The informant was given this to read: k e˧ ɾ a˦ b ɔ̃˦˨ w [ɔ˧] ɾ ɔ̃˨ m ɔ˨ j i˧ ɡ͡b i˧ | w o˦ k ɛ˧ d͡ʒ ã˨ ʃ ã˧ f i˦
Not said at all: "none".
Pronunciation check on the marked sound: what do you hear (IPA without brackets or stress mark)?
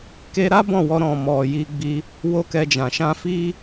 ɔ˧